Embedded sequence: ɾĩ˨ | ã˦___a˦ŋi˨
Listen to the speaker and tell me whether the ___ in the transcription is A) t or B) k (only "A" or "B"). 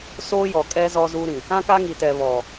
B